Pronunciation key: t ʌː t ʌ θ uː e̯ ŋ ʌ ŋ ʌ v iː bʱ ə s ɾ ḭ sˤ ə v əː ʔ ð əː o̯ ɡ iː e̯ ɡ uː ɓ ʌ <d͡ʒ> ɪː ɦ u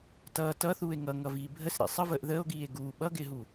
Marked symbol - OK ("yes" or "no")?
no